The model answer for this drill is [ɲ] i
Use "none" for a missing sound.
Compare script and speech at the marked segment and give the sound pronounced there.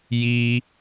j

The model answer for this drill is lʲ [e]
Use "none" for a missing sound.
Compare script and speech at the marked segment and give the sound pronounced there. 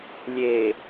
e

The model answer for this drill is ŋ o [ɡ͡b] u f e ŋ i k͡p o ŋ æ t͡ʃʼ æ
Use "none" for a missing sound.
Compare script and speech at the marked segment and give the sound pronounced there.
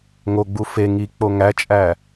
ɡ͡b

